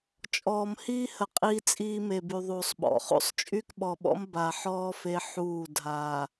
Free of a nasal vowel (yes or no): yes